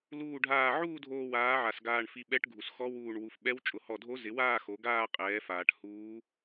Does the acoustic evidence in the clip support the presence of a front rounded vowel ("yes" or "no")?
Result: no